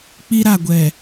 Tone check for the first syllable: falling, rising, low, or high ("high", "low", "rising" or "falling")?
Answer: high